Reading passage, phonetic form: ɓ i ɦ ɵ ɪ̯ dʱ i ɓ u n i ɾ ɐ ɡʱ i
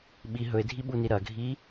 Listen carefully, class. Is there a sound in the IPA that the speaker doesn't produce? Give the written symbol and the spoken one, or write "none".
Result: none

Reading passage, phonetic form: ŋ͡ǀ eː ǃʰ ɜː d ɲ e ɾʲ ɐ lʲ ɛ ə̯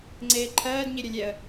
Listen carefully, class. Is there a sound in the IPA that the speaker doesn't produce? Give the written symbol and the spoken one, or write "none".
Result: none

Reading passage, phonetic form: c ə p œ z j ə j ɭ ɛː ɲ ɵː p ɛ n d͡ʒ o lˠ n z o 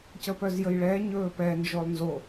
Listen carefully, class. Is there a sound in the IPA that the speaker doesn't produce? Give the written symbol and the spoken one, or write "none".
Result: none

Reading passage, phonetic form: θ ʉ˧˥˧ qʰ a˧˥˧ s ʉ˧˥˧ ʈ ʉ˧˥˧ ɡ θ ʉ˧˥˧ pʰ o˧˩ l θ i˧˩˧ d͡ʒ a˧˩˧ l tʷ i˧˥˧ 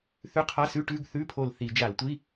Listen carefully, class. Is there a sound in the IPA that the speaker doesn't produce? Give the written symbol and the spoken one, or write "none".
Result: none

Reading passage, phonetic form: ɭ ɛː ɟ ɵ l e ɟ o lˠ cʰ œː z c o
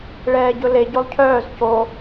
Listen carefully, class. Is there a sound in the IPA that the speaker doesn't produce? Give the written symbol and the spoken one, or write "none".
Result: none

